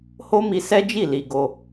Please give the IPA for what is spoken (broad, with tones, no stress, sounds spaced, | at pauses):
h o˦ m i˧ s ɛ˦ d͡ʒ i˦˨ l i˧ ɡ o˧